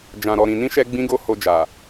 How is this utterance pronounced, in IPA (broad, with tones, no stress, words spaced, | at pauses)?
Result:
d͡ʒã˨ ɾɔ˨ɾĩ˨nĩ˧ʃɛ˧ ɡ͡bĩ˦ɡo˦ho˧d͡ʒa˨